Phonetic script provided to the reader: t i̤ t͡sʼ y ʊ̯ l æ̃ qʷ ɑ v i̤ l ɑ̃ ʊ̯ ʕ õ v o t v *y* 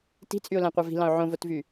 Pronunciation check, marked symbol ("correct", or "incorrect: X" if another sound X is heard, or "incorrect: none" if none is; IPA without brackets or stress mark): correct